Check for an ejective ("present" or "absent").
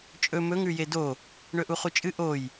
present